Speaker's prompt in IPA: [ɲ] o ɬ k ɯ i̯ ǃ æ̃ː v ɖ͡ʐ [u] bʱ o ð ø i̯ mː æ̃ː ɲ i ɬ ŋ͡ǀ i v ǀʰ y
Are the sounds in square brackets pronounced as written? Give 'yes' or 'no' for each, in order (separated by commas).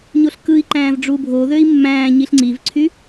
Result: yes, yes